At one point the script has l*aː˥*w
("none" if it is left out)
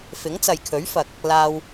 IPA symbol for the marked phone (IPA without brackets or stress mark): aː˧